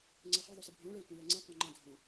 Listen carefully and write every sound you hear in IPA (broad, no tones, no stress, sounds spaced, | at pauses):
ŋ͡ǀ ɛ χ i ðˤ o s ɯ bʱ õ ɭ ɛ tʷ ẽ l ɛ ŋ͡ǀ ẽ qʷ ã ŋ͡ǃ ã dʱ õ